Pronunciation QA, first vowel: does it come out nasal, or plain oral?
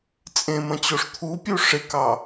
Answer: nasal